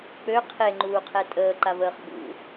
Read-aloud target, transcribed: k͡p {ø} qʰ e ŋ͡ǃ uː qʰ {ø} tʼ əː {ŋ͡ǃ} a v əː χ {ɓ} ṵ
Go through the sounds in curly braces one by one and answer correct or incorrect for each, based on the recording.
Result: correct, incorrect: ɛ, incorrect: ǃ, correct

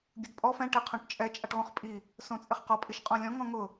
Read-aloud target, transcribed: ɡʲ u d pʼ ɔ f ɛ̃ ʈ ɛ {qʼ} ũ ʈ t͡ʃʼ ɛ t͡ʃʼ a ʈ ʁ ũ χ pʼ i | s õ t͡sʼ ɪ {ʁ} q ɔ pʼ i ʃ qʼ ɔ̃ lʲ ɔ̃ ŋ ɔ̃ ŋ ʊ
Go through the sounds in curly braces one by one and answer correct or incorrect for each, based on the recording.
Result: incorrect: qʰ, incorrect: χ

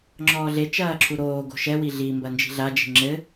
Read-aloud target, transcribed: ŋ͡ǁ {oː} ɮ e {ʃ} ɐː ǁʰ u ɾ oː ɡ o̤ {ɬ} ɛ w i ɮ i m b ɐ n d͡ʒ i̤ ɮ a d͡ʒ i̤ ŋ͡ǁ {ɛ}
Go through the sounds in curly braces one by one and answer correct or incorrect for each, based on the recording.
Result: incorrect: ɔː, incorrect: t͡ʃ, incorrect: ʃ, incorrect: ɘ

